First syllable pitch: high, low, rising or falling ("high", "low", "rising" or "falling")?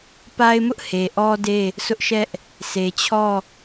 high